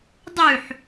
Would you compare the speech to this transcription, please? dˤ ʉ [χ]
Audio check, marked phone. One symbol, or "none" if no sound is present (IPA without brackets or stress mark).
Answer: ħ